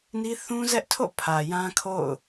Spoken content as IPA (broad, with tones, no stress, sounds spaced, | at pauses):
n i˦ θ ũ˦ z ɛ˦ ʔ tʰ o̰˦˨ pʰ ä˨ j ã˦ kʰ o̰˦˨ ʊ̯